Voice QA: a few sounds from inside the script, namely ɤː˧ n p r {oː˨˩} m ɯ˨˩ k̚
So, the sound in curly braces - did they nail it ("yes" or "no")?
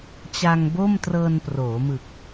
no